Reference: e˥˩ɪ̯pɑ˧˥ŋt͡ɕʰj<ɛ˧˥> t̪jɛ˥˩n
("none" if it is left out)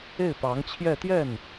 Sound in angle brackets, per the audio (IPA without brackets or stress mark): ɛ˥˧